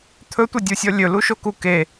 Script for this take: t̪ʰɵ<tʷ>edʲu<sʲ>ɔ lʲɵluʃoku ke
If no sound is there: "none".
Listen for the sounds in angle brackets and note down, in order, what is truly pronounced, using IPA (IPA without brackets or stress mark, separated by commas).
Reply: tʷ, sʲ